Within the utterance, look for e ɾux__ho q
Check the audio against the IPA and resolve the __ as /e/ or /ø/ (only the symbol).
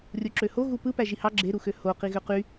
ø